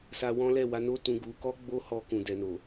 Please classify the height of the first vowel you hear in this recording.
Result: low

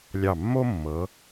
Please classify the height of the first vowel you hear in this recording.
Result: low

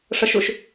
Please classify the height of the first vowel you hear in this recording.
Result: mid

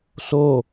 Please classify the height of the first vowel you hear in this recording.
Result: mid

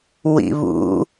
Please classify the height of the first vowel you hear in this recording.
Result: high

